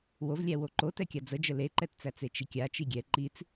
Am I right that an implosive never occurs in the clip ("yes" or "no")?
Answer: yes